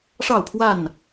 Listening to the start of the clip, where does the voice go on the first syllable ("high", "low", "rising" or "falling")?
falling